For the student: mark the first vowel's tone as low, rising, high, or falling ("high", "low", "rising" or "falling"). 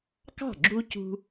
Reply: falling